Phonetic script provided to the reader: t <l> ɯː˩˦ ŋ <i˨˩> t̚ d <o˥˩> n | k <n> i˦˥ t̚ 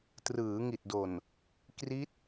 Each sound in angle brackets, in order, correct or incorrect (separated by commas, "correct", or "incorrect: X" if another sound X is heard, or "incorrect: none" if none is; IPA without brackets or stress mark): incorrect: r, correct, incorrect: o˨˩, incorrect: r